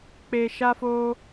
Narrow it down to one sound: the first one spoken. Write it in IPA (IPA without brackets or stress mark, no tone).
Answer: k͡p